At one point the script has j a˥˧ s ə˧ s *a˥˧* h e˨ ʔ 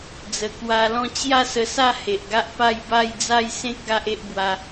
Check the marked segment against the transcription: correct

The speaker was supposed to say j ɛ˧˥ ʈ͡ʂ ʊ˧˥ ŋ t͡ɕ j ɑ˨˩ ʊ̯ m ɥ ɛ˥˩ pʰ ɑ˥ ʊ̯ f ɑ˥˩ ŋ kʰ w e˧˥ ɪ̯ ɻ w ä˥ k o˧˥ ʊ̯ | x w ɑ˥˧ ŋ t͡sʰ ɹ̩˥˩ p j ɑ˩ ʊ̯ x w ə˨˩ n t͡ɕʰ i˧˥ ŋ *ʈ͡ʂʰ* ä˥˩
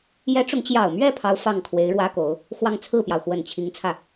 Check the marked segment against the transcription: incorrect: t͡sʰ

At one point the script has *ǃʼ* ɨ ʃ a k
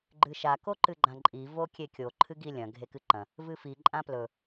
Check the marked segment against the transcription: incorrect: ɡ͡ǃ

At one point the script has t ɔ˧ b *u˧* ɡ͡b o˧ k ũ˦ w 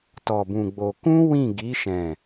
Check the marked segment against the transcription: incorrect: ũ˧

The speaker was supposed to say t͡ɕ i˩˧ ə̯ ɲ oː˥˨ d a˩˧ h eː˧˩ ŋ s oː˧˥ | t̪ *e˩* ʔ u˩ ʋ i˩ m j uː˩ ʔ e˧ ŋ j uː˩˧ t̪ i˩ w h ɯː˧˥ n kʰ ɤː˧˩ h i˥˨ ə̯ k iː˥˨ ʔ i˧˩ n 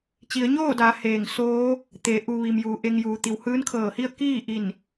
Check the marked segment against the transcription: incorrect: e˩˧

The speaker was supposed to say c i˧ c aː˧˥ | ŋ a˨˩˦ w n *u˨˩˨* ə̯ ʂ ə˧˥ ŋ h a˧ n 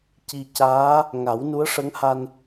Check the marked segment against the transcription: incorrect: u˧˥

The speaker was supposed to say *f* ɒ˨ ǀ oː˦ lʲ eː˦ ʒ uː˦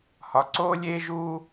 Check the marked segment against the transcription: incorrect: h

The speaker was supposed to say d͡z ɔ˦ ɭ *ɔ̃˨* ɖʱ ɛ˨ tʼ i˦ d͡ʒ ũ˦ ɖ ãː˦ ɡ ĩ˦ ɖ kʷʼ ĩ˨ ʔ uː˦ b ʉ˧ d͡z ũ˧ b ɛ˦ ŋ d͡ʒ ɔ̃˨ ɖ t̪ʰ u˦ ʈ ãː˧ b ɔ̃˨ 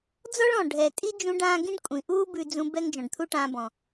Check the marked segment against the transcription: correct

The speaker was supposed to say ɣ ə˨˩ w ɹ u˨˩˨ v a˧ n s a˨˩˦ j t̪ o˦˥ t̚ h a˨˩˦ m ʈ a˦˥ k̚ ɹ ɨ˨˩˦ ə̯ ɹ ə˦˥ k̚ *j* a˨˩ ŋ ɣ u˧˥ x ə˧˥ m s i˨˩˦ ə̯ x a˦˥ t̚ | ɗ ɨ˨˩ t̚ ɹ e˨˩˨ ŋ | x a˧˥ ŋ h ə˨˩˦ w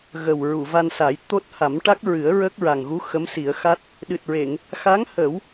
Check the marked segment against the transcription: incorrect: ɹ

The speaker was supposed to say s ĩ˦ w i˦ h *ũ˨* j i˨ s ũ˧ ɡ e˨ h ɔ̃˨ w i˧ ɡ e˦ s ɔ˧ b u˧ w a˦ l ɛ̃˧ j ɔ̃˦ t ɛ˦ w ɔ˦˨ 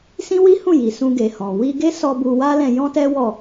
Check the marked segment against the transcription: incorrect: ũ˦˨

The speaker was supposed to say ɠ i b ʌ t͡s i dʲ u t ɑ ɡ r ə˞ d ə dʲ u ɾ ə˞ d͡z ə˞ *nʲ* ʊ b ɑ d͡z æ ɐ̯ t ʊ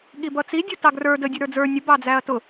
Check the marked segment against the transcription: correct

